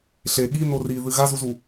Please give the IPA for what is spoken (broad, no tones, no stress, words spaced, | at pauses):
ɬe ɠino riðɨ ɣazuzu